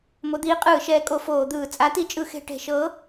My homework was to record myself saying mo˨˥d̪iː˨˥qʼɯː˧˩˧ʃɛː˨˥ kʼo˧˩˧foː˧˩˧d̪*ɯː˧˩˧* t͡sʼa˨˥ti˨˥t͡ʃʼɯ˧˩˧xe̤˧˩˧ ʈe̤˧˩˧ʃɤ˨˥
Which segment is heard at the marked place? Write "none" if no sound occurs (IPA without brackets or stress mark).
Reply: ɯː˧˩˧